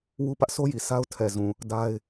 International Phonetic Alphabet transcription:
wu˦pä˦ʔ sʰo˦ji˨ sa˦ʊ̯ tʰɛ˨zũ˨ | da˦ɪ̯

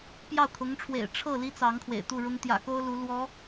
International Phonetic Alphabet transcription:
pjɑ˥˩ʊ̯kʰʊ˧˥ŋʈ͡ʂʰwḛ˨˩ɪ̯ ʈ͡ʂʰɤ˥˩ li˥t͡sɑ˧˥ŋ kʰwḛ˨˩ɪ̯t̪u˥˩ɻʊ˥ŋ t̪jä̰˨˩ko˥ʊ̯ lu˧˥ lwɔ˧˥

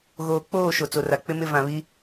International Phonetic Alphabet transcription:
ɣoː˨k͡poː˦˨ ʃo˨t͡so˨ra˨k͡pɪ˦ mɪ˦ vã˨βi˦

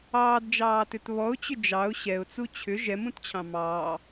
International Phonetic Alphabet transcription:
ɑːdd͡ʒɑːtʏt βɔʊ̯t͡ɕʏ d͡ʒɑʊ̯ ɕɛʊ̯t͡su t͡ɕʰʏ ʒɛmũtt͡ɕʰɑ̃ mɑː

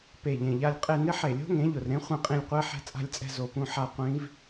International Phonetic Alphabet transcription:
pe˨˩ʎẽ˨˩ʎa˦˨lʲqʼe˦˨ nɪ˦˥ħe˨˩lʲo̤˦˥ ŋẽ˩˥ʎʊ˨˩rɾẽ˦˥ χʷẽ˦˨qʼĩ˦˨lʲqʷe˦˥ ħɛ̤˦˨t͡sʼa̤˦˨lʲt͡sʼɛ̤˦˨ zo˨˩pũ˦˨ħa˦˨ qʷĩ˦˥v

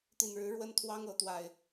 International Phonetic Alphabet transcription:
t̪i˨˩nɻɻ̩˨˦ ɻwə˦n t̪ʰwɑ˦ŋɤ˨˦ t̪wa˨˩ɪ̯

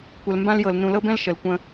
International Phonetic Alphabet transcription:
kʷə˨l mbã˦ljɤ˨l nũ˨lɤ˦bɛ̃˦l ʃə˨lkʷə̃˦

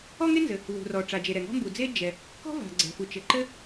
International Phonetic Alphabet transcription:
ɔ˥ŋe˥nzɘ˩ | wṳ˩rɔ˩ ʈ͡ʂa˩d͡ʒe˩ ɾɛ˩ŋɔ̤˥mbu˩d͡ze˥ d͡ʒɛ˩ | kɔ̤˥va̤˩ ɡ͡ǀɛ̤˩fu˩ t͡ʃɘ˩ǃɘ˥

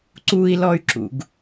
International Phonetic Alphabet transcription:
ǀui̯lɔy̯ǁṵɡ

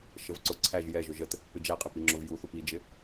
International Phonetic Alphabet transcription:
ʃəvǀʊ ǀʰæʒ jɛ ʒʊʒət | pɪd͡ʒæqʼɪ piŋ͡ǁʊvjuθup id͡ʒɪ

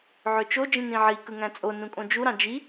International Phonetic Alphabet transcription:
ʕøt͡ʃo d͡ʒĩnĩʕi kɯŋæ̃t͡sʼo nũkʼõd͡ʒu ɾɑ̃d͡ʒi

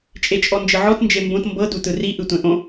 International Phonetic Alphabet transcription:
t͡ʃʼet͡ʃʼɔnd͡ʒɤʕɔt nd͡ʒembõt mbɤ dutɯri ʔɯtʷɛ̃ʔõ

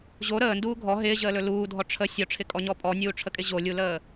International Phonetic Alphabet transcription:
ʑo ɾəːnduː ɡʱɔ ɦɪːʑəːlɵ luːdʱɔ ʈ͡ʂʰə sʲɔʈ͡ʂʰɪkʼɔɲɔ pʼɔnʲuːʈ͡ʂʰəkʼɪ ʑolʲuləː

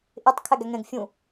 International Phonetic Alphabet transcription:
ʔɪtˤkʰæɡ æŋɛ̃ɡ fʲũ

